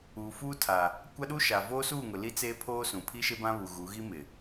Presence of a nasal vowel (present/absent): present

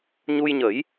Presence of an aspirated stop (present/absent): absent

